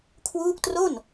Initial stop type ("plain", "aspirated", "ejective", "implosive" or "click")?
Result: aspirated